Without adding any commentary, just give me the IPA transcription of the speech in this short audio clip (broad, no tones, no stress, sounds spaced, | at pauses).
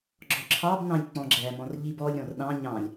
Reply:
ɡ͡ǁ ɔ ǁʰ ɑ b n ɑ̃ lʲ k͡p ɔ̃ ɡ͡ǁ æ m ɔ̃ r ʎ i b ɔ lʲ ɾ ɔ̃ r ɗ ɑ̃ ɲ ɑ̃ lʲ